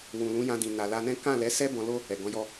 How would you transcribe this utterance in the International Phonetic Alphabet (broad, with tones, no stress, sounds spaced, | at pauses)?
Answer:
w ũ˨ l ũ˨˦ j ã˧ d ĩ˨ n a˨ l a˧ n ɛ̃˦ k ã˦˨ l ɛ˨˦ s ɛ˦ b ɔ̃˧ l o˦ | ɛ˨ ɡ ɔ̃˨˦ j ɔ˦